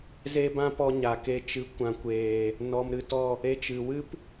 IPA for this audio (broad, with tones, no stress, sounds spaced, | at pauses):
z e˦ b ã˦ p ɔ˧ ɲ a˨ k e˧ t͡ʃ ɨ˨˦ kʷ ã˨ kʷ eː˨ | n ɔ˨ m ɾ ɨ˨ t ɔ˦˨ | e˧ t͡ʃ ɨ˨ w ɨ˦ p